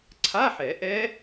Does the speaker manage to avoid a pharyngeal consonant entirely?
no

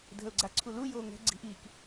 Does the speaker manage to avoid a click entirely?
no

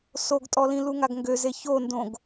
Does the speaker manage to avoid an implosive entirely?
yes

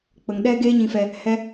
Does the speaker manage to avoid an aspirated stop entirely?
yes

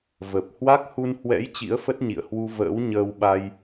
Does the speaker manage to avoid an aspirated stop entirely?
yes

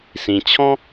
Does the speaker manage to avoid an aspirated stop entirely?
no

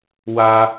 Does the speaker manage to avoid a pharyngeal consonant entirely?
yes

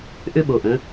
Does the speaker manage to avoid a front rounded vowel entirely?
no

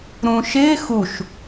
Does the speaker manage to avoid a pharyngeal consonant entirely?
yes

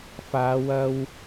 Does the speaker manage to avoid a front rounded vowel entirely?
yes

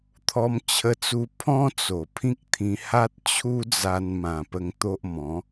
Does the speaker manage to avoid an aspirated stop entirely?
no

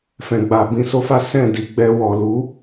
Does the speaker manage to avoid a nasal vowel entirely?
no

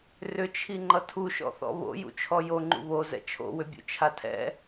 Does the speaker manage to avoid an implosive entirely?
yes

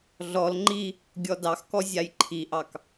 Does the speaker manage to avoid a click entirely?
no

